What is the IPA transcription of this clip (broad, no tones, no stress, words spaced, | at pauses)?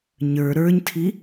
ɲə˞ ɾə˞ɲtʰi